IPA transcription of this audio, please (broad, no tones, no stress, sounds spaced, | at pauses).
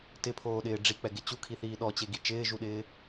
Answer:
t ɪ pʰ oː ɗ ɪː ɖ͡ʐ i k͡p ɛ ɡ ɪ t͡ɕ u kʰ i θ iː ɗ ɔ t͡ɕ e ɡ i t͡ʃ ɪː ʒ u ɗ ɪː